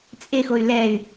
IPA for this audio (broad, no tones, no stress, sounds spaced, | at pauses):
t͡sʼ e x o y̯ l ɛ y̯